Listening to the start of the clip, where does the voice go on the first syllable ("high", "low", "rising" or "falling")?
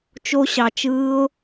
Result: high